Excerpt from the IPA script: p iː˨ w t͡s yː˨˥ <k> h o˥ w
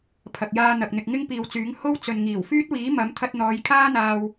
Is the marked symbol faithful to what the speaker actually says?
no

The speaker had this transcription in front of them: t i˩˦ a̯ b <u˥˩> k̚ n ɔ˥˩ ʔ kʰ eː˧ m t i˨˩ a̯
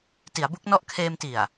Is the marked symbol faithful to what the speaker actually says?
no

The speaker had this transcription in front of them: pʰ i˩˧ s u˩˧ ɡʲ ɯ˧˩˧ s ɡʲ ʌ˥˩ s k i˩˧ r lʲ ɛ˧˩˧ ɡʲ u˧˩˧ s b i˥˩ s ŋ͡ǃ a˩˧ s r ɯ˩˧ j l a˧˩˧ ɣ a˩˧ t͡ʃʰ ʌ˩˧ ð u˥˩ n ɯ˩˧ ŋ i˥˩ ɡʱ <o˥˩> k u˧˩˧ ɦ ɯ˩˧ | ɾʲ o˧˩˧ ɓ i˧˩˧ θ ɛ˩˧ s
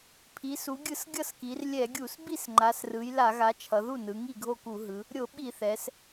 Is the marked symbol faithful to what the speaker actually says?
yes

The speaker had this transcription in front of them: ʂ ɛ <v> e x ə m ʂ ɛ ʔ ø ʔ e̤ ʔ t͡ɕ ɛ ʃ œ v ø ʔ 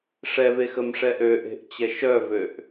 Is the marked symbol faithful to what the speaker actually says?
yes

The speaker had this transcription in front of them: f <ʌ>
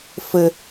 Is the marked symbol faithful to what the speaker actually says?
no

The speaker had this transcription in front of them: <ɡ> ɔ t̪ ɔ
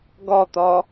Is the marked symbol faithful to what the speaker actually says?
yes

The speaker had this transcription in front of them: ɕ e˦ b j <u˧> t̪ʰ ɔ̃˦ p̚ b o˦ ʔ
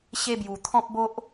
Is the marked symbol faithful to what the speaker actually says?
no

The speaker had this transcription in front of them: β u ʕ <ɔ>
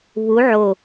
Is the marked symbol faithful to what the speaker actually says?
no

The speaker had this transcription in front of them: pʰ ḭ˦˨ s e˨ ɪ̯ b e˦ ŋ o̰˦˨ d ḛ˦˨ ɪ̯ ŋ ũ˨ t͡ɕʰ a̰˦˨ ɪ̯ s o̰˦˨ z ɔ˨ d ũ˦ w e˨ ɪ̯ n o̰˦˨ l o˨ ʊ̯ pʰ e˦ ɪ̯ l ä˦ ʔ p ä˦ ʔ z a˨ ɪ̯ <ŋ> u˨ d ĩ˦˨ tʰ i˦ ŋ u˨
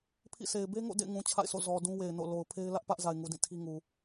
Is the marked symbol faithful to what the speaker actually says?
yes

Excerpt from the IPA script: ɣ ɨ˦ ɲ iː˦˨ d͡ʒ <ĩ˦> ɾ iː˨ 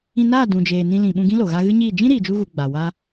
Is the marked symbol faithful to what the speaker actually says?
yes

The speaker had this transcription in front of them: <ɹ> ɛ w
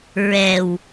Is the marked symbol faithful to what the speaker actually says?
yes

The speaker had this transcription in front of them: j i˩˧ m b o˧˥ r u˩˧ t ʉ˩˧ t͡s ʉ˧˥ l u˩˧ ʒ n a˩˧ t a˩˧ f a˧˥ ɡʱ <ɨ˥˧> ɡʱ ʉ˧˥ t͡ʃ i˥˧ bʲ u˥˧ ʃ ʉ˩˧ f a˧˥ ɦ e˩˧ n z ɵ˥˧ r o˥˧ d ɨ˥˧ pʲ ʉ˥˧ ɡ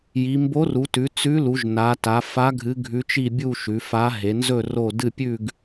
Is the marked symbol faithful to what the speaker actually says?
no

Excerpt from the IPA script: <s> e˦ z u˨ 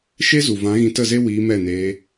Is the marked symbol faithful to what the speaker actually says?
no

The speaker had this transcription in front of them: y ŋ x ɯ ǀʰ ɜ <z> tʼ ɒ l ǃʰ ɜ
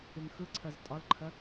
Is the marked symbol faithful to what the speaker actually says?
yes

